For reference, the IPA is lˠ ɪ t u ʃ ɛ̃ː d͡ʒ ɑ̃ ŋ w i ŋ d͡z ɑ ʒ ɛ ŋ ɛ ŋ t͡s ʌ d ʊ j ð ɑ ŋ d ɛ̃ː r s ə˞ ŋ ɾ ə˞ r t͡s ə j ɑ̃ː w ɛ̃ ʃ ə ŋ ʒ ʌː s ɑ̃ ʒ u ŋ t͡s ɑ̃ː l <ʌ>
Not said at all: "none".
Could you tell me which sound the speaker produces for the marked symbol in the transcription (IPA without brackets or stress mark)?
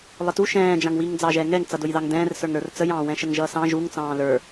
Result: ə˞